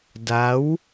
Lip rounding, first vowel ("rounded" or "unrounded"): unrounded